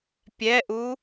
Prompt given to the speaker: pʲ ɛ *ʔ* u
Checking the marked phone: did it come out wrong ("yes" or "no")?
no